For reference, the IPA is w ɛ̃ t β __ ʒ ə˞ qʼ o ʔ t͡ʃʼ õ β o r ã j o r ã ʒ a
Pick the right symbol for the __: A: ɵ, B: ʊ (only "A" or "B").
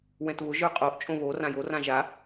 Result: B